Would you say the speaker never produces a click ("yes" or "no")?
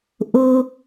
yes